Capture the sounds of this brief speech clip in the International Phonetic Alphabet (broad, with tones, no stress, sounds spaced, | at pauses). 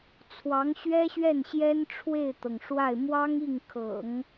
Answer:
t͡sʰ w ɑ˧˥ ŋ ɕ ɥ ɛ˥ ɕ ɥ ɛ˥˩ n ɕ j ɛ˥ n ʈ͡ʂʰ w e˥˩ ɪ̯ t̪ ɤ˩ ŋ ʂ w a˥˩ ɪ̯ m w ɑ˥ ŋ i˥˩ ŋ kʰ ɤ̰˨˩˦ ŋ